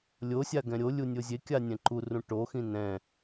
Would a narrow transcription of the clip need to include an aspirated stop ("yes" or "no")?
no